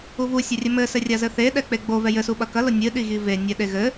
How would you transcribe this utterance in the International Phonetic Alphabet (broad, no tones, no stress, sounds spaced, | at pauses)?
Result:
u v u sʲ ɐ rʲ ɘ m ɘ s ɘ rʲ a z ɘ θ e ɗ ɛ k͡p e ɡ͡b o v ɛ j ɘ s u ɓ ɐ k ɐ l o nʲ ɨ ɗ i ɣ i v e nʲ ɛ ɗ e ɣ ɘ